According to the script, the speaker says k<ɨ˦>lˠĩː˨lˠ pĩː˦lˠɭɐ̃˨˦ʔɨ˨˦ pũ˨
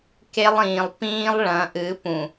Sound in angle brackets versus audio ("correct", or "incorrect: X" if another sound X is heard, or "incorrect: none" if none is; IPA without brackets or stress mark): incorrect: e˦